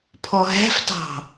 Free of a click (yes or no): yes